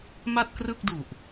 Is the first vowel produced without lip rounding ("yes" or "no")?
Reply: yes